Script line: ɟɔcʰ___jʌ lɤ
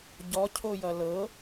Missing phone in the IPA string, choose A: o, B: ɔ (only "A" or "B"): A